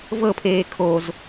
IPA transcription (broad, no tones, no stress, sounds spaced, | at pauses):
v ɤ pʰ eː kʰ o z